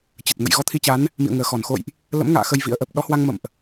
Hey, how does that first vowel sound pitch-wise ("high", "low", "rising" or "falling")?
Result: low